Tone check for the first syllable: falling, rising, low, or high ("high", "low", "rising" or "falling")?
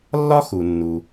high